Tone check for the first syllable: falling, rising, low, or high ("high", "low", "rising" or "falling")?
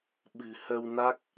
low